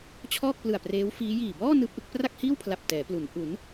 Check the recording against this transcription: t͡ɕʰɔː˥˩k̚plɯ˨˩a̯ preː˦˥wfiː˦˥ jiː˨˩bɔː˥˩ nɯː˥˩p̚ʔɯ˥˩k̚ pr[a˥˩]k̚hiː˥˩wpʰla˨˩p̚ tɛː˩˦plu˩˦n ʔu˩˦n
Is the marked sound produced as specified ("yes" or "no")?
yes